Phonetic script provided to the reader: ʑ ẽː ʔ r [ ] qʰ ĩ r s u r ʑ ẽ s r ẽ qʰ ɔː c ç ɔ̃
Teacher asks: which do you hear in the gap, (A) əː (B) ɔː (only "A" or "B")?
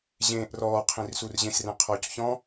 B